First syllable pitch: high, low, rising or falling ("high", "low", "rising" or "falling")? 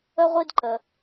high